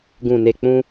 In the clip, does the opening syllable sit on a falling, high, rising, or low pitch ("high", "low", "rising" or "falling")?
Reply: low